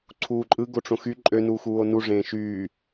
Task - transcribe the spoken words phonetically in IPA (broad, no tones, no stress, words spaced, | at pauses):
ǀʰuːǃʼɯ ɡoʈ͡ʂõxy ǃʼønuːxuːo̯ nuʐẽː ʃyː